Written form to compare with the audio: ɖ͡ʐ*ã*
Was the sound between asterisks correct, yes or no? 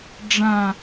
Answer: yes